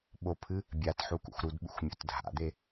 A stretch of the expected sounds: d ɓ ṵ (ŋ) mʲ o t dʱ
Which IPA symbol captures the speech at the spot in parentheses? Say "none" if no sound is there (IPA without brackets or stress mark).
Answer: x